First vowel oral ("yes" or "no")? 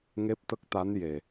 yes